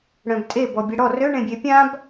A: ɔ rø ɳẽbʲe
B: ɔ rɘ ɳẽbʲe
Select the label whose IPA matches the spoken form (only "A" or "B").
A